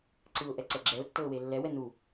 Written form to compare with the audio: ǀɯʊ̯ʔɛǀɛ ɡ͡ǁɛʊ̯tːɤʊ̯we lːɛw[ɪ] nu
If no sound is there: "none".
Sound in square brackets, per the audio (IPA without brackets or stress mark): ɛ